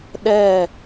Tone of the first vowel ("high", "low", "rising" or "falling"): falling